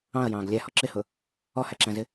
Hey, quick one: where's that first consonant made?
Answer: palate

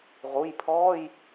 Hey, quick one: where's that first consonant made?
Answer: uvula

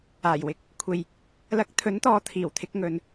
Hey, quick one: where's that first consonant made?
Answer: palate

